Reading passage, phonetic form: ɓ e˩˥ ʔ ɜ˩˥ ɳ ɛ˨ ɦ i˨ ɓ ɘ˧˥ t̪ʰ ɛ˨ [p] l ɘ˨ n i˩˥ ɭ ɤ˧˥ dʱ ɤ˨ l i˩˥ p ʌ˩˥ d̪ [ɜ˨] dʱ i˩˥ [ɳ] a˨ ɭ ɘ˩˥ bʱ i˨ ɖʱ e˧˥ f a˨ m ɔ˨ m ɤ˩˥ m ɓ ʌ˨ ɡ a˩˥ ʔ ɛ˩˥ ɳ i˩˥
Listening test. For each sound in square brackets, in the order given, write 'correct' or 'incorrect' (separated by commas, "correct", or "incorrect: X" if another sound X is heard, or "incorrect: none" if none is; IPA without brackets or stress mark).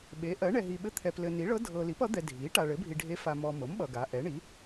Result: correct, incorrect: ɛ˨, incorrect: ʈ